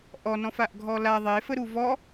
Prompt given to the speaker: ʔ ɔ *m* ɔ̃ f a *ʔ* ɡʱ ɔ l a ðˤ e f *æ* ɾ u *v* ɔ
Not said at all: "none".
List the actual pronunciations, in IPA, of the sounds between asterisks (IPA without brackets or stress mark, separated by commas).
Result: n, ʔ, ə, v